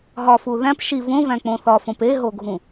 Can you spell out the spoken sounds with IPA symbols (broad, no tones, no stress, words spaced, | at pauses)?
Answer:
ɦɒfuː ðæ̃p ʃi võvæ̃k͡põ θɒfõp eɦoɡʱũ